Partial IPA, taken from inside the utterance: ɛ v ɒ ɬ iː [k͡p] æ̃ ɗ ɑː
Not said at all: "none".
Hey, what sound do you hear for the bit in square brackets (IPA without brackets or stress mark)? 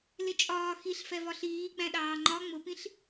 ɡ͡b